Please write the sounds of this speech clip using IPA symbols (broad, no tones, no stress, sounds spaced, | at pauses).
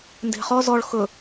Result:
n d e̤ χ ɔ z ɔ ɭ x ɵ